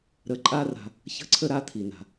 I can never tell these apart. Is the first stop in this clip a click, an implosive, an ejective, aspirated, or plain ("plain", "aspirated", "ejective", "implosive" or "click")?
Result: click